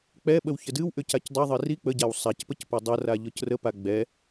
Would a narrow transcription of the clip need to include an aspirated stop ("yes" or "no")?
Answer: no